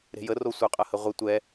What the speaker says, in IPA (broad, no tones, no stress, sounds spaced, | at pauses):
ɾ e̤ j ə r o sʷ œ qʼ ɐ h ə ʁʷ ə tʷ ɛ